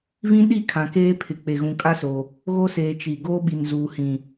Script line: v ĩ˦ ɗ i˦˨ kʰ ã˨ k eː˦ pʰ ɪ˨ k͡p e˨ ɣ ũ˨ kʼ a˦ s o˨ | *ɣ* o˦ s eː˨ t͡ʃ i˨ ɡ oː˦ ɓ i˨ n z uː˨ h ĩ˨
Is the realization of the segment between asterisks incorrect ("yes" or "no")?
no